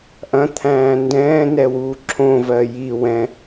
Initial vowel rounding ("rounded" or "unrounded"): unrounded